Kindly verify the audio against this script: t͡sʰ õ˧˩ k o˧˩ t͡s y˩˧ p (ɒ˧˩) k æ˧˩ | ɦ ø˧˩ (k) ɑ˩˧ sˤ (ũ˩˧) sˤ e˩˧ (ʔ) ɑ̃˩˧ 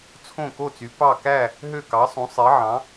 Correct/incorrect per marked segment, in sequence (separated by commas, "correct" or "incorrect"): incorrect, correct, correct, incorrect